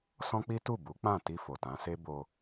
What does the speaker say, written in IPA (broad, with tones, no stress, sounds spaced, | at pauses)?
s ɔ̃˦ k͡p i˦ t u˦˨ b u˨˦ k͡p ã˦˨ t i˧ f o˨ t ã˨˦ s e˦ b o˧